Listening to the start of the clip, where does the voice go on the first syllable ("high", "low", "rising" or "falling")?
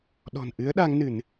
low